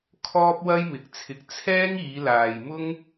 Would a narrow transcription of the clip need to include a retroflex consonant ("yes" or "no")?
no